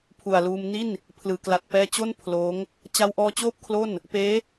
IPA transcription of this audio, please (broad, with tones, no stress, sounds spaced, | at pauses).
pʰ u˨˩ a̯ l uː˧ m n i˥˩ n | pʰ l ɯː˩˦ k l a˨˩ t̚ p ɛː˧ t͡ɕ o˥˩ n pʰ l oː˦˥ ŋ | t͡ɕ a˧ w ʔ ɔː˧ t͡ɕ oː˥˩ p̚ kʰ l o˥˩ n | p eː˦˥